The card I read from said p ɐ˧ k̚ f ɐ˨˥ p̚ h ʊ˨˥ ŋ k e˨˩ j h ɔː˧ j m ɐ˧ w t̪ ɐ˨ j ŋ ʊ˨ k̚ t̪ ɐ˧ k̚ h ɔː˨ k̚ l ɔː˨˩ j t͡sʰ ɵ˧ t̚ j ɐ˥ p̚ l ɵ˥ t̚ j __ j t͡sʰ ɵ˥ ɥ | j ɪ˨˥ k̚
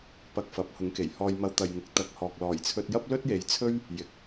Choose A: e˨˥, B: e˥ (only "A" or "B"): A